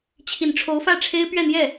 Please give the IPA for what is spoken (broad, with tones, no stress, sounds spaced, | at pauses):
t͡ɕʰ i˨˩ n ʈ͡ʂʰ o˧˥ ʊ̯ f ä˥˩ ʈ͡ʂʰ e˥ ɪ̯ p ɥ ɛ˥˧ n̪ j ɛ˥˩